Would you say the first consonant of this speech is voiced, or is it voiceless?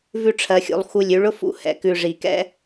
voiced